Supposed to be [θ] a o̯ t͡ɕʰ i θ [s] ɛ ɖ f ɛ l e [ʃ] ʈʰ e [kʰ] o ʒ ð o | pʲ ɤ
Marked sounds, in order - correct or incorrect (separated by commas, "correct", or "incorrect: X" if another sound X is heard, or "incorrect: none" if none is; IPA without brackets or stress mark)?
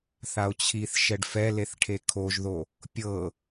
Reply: correct, incorrect: ʃ, incorrect: θ, correct